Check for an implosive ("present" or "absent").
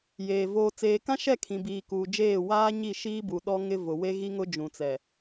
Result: present